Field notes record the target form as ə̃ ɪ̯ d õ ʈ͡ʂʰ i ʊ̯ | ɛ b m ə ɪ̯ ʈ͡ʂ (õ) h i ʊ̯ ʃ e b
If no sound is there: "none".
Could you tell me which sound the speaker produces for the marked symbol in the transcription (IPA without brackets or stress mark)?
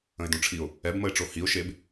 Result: o